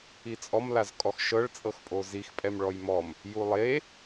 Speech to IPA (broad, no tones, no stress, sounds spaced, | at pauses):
i t͡sʼ ɔ m l a z kʼ ɔ x ʃ ɤ ɭ t͡sʼ ɤ x pʼ o z i x pʼ ɛ m ɭ ɔ j m ɔ m | j u lˠ e